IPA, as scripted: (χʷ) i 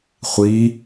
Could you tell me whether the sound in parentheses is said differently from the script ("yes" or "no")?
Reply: no